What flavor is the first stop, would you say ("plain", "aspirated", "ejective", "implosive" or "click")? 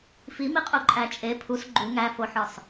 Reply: ejective